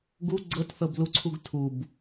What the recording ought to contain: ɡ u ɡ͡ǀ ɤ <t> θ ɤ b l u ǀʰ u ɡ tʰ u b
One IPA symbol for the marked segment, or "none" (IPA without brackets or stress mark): t